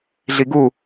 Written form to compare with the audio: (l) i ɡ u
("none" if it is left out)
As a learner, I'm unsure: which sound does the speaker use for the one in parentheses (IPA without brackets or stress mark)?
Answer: ɮ